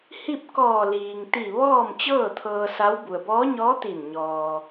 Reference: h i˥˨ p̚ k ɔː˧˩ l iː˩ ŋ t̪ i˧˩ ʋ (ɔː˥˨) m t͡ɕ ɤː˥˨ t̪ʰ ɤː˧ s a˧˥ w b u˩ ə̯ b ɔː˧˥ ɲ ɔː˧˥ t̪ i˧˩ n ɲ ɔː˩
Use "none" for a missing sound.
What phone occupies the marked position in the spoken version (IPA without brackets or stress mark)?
ɔː˥˨